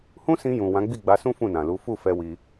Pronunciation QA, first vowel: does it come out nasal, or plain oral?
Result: nasal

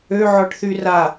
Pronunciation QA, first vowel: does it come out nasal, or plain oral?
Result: oral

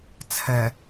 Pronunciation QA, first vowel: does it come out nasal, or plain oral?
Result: oral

